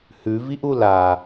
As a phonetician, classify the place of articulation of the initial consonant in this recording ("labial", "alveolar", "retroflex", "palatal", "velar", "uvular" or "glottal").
glottal